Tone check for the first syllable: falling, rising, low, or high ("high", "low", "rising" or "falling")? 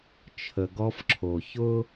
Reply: low